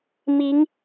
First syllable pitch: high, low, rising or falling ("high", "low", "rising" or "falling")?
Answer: rising